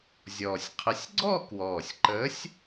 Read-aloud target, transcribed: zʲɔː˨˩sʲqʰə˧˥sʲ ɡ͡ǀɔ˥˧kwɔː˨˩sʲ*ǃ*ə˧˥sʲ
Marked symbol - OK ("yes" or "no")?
yes